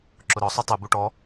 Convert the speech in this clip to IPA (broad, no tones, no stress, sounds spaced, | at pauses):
ǁ ʊ ɾ ɔ sˤ u tˤ u b u ʈ ɔ